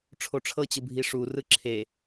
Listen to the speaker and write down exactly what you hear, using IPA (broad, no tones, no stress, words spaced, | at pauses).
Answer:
ʈ͡ʂʰoʈ͡ʂʰɤt͡ɕɯ bʱiʂu rɯǁʰe